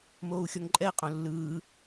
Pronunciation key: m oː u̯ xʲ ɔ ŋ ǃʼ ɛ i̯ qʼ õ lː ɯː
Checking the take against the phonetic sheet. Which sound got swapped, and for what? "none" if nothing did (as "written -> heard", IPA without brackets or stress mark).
none